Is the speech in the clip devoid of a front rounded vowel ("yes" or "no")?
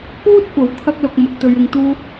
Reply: yes